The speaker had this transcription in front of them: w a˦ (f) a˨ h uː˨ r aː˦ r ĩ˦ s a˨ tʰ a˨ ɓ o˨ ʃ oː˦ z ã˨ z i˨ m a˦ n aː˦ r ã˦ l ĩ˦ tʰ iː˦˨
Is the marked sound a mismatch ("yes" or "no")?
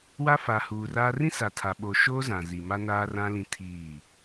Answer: no